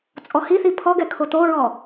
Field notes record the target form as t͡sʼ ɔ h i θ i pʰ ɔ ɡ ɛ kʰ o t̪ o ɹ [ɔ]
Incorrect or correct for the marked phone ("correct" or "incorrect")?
correct